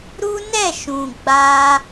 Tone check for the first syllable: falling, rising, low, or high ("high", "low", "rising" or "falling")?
high